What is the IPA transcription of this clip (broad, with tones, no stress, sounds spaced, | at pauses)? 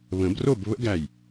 β ə̃˨˩˦ b r o˥˨ b β ə̰˦˥ ɡ æ˧˩ j